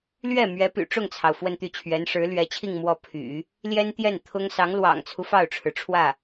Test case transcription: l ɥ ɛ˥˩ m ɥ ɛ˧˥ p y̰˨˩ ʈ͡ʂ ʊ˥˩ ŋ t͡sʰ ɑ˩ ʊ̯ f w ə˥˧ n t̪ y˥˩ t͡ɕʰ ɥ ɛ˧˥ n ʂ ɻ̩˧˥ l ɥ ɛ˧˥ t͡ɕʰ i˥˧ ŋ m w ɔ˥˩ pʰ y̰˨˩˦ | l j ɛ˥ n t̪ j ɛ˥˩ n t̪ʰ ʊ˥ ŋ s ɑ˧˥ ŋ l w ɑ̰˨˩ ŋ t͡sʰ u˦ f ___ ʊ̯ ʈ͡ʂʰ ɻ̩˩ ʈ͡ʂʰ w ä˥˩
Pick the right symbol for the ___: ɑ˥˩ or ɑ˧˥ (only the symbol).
ɑ˥˩